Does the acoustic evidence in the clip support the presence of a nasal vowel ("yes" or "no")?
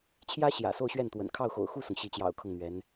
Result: no